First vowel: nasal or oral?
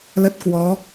oral